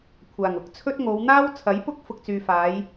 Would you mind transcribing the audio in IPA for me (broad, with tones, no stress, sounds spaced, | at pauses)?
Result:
kʷʰ aː˨˩ ŋ ʊ˨˥ k̚ t͡sʰ ɵ˥ t̚ ŋ o˨˧ w n̪ aː˥ w t͡sʰ ɐ˨˥ j p ʊ˥ k̚ f ʊ˥ k̚ t͡s yː˧ f aː˨˥ j